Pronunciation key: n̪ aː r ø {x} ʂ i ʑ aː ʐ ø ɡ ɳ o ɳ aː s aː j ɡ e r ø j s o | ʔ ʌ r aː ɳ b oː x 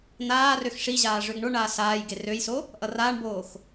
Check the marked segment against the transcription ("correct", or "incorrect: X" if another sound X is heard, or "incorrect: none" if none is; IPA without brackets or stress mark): correct